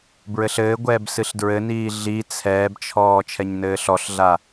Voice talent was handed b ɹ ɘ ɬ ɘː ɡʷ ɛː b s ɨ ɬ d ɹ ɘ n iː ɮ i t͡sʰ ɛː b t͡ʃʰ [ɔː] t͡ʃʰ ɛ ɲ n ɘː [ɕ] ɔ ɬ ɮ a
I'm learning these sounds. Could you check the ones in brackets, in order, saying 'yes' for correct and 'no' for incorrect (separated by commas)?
yes, no